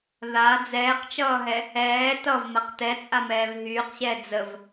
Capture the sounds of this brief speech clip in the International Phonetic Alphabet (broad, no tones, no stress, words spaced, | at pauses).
ða d͡zɛːqt͡ʃʌːɦɛ | ɛː tʌvmaq tɛt͡sʼamɛːv ɦyːqɕɛː d͡zəv